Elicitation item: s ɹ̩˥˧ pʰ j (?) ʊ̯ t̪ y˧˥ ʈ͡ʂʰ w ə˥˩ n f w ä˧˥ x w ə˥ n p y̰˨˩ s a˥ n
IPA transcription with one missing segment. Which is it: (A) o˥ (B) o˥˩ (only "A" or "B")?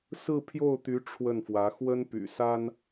B